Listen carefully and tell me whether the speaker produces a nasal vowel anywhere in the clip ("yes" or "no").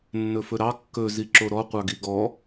no